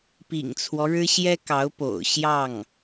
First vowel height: high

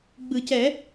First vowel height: high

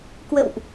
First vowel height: mid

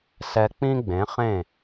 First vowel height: mid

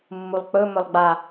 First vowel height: high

